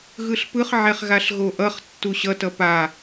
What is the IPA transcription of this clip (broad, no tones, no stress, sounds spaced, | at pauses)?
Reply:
ɣ ɯ ɬ p ɯ χ ʕ ɛ χ ɣ a ɬ ɣ o ʔ ʌ χ tː u ɕ ʌ t ʌ p a